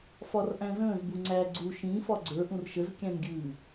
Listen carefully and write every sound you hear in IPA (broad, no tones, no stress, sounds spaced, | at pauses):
f ɒ r ʔ æ̃ z ə̃ː z b u ŋ͡ǀ æ ɡ͡ǀ u ʃ ĩ f ɒ ɡ͡ǀ ə˞ ʔ ũ r ʃ ə z kʲ æ̃ n ɡʲ ʉː